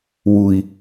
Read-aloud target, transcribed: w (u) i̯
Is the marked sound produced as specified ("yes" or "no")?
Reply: yes